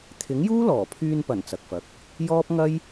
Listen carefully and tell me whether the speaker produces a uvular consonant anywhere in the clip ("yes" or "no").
no